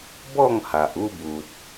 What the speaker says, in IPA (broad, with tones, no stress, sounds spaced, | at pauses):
b ɔ˥˧ ŋ h a˨ ʔ u˥˧ b u˨ t̚